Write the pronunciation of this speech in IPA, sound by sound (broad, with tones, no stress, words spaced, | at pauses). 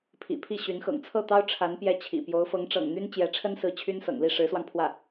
pʰḭ˨˩pʰi˥˩ ɕy˧˥nxɤ̰˨˩ŋ t͡sʰɤ˥˩t̪ɑ˥ʊ̯ ʈ͡ʂʰa˧˥n pjɛ˥˩t͡ɕʰḭ˨˩ pjo˧˥ʊ̯fɤ˧˥ŋʈ͡ʂɤ̰˨˩ŋn̪y˥n t͡ɕjɛ˧˥ʈ͡ʂʰə˥nsɹ̩˧˥ t͡ɕʰy˥nsɤ̰˨˩ŋli˥˩ ʂɻ̩˧˥swɑ˧ŋ pʰwä˥˩